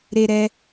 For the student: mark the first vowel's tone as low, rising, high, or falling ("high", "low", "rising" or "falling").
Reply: high